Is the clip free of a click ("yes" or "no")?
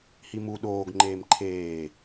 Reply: no